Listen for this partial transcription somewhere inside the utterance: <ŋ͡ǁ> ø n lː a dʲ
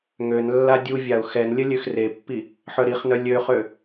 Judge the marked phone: incorrect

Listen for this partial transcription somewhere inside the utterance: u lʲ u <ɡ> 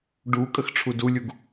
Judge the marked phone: correct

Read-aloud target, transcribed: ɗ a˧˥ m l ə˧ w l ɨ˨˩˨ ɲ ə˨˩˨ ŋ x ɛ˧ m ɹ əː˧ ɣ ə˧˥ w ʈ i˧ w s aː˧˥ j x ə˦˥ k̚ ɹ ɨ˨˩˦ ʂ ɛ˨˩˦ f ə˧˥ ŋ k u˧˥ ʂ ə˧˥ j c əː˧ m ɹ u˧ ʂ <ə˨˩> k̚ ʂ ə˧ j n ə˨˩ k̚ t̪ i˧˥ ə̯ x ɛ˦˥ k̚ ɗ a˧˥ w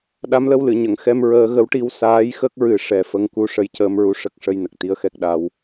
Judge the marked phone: incorrect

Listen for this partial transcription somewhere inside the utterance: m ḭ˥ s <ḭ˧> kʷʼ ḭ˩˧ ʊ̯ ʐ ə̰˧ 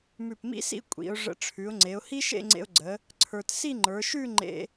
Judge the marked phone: incorrect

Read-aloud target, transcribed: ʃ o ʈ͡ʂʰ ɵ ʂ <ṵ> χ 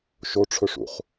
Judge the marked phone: correct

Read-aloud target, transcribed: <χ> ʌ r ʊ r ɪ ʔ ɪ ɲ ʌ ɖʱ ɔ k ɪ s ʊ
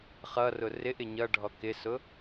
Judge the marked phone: correct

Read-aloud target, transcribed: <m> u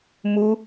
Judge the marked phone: correct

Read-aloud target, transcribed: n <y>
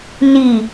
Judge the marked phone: incorrect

